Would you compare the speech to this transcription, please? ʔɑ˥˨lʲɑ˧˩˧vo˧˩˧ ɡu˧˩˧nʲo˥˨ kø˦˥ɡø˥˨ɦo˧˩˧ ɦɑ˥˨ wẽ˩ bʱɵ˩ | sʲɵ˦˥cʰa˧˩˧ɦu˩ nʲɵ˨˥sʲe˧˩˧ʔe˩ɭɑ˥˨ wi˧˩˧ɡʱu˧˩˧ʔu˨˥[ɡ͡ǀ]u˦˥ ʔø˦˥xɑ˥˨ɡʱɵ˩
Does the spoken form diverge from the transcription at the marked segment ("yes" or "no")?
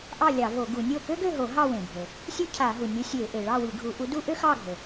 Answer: yes